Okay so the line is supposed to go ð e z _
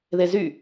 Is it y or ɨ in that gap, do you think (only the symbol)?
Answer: y